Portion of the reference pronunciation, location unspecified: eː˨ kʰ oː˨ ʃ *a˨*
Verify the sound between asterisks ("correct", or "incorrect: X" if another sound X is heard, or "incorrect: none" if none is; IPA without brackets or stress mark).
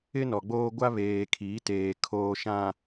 incorrect: ã˨